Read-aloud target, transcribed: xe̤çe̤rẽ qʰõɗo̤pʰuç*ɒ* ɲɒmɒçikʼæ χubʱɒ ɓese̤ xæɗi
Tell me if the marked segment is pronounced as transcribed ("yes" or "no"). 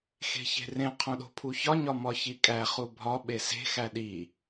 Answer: yes